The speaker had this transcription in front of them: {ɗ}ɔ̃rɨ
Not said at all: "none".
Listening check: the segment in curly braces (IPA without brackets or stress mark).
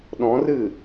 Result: ɗ